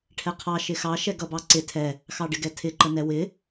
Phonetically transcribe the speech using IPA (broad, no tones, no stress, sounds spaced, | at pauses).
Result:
ʈʰ ɛ qʰ ɑ ʃ ɪ x ɑ ʃ ɛ ɡ ʌ b ɑ ǀ ɪ tʰ ɛ | x ɑ ɖ ɪ ɡ ɛ tʰ ɪ ǃ ə n ɛ w ɪ